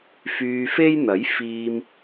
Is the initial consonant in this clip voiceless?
yes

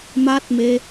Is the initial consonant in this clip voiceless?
no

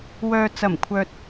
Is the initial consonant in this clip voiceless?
no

